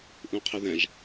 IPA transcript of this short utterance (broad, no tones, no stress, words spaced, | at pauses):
ʔũqʰɪðɛ̃ʒ